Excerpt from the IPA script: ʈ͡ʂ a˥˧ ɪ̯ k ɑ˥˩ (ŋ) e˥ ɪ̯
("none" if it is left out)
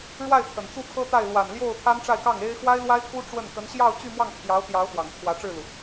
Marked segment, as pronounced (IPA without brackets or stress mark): ŋ